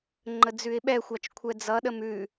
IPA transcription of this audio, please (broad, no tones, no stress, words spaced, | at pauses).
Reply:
ŋ͡ǃəd͡zʉɪ̯ɓɛxʷɑt͡ʃ kʷʰɛd͡zʌɗəm ʉ